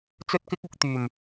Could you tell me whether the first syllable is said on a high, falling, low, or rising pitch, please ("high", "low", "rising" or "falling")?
high